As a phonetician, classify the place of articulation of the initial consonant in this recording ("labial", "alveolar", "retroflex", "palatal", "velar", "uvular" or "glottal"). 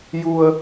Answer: palatal